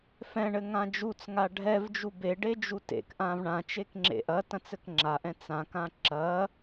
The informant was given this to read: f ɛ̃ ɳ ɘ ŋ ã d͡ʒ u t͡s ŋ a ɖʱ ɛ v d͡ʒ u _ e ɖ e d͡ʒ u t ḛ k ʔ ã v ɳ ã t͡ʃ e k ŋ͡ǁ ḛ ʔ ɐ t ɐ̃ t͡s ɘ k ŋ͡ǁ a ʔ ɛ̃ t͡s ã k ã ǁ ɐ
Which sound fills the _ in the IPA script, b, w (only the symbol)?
b